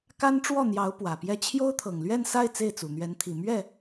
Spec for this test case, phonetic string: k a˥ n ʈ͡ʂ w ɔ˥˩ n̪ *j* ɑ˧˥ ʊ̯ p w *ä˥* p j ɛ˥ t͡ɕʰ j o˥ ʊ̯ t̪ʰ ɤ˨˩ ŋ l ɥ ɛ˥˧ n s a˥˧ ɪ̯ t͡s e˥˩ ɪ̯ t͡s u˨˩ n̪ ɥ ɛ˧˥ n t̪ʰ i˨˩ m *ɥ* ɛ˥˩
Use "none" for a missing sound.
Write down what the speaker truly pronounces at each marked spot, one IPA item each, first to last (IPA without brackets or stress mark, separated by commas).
j, ä˨˩, ɥ